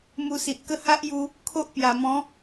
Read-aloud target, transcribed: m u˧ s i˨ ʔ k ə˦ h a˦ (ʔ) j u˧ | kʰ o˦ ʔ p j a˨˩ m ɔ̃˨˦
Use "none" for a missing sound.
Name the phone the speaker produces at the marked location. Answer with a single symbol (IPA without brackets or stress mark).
ʔ